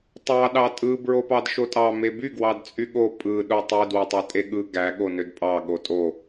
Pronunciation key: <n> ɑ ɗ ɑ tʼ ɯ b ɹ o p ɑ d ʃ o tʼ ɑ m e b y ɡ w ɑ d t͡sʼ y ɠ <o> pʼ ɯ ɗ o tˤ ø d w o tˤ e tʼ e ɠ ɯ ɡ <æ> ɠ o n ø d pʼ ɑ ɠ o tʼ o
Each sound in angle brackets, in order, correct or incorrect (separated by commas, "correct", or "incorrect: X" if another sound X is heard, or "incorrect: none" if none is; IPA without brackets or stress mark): incorrect: tˤ, correct, correct